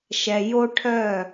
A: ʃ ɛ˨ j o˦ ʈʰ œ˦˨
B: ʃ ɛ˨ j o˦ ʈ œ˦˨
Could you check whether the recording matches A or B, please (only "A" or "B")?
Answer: A